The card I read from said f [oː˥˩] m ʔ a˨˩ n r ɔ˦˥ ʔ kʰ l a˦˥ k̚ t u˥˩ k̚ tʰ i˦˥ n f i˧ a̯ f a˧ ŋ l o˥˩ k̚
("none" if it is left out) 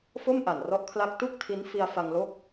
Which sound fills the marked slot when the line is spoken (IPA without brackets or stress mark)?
o˥˩